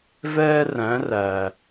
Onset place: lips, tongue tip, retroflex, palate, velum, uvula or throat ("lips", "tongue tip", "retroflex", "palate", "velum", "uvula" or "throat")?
lips